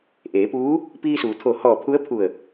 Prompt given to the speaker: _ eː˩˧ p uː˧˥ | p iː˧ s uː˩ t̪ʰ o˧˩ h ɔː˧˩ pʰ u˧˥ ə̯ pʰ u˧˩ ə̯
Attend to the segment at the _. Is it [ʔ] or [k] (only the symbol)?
ʔ